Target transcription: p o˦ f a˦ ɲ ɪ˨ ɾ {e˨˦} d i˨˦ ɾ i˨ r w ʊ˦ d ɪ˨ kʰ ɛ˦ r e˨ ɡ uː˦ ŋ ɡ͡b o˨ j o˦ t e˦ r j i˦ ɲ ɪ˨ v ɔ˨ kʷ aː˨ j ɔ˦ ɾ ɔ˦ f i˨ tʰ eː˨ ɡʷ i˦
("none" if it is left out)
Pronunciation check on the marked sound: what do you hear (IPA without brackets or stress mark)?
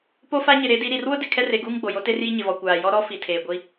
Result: e˨˦